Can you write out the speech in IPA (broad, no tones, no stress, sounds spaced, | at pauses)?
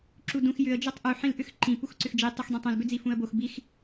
ǁ u d ũ x j ʏ ə̯ d͡ʒ o tˤ ʔ u ħ ĩ l ʔ ʏ x ǃ ĩ p u x ǀ ʏ x d͡ʒ i tˤ u x dˤ ĩ tˤ õ l b ʏ d͡z i f ũ ə̯ b o x b i x